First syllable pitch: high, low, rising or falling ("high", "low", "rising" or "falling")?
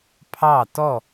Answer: falling